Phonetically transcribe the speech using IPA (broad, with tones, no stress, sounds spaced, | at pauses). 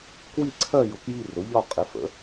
k w i˦˨ ǀʰ ɜ˦˨ j ʊ˩˥ k j i˦˨ r ʊ˩˥ ʎ ɒ˦˨ qʼ ɪ˩˥ f ə̰˩˥